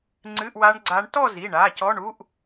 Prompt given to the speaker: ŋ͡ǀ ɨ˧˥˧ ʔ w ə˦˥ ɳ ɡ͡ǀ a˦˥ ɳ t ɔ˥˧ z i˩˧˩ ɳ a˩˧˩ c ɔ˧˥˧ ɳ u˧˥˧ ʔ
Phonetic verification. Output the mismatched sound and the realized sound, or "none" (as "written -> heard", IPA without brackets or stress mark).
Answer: ə˦˥ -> a˦˥